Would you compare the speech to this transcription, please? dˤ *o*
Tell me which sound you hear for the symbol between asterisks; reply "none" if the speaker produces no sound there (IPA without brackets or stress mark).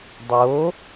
o